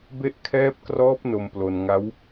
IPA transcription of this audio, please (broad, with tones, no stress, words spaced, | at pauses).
be˦˥ʔkʰɛː˦˥p̚krɔː˦˥p̚ no˧m plo˧n ŋa˦˥w